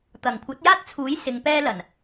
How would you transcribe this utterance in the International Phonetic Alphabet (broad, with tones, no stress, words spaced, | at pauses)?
t̪ɐ˨˩ŋkʷʰɐ˨˥t̚jaː˥t̚t͡sʰuː˨˥j sɪ˨˧ŋpɛː˥lɐ˨˩n